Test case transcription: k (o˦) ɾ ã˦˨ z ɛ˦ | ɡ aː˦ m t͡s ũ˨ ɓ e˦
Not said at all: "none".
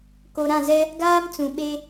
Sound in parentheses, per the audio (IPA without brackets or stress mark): o˨